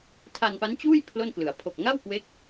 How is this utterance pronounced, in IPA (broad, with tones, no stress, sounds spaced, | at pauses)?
tʰ a˧ n p a˦˥ n t͡ɕ uː˥˩ j pʰ l o˥˩ n k l ɯ˩˦ a̯ pʰ o˨˩ k̚ ŋ a˥˩ w k w e˦˥ k̚